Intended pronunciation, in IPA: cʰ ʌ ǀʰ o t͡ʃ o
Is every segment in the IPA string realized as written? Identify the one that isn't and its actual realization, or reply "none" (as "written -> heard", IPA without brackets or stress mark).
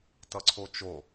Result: cʰ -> t